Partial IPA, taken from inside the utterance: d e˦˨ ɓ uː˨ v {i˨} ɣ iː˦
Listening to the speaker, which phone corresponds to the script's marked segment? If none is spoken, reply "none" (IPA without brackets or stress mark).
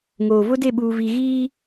i˨